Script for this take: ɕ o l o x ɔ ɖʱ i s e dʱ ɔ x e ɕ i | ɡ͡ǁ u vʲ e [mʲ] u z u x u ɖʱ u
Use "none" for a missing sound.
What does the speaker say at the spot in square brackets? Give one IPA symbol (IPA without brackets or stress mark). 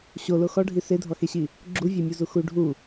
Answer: mʲ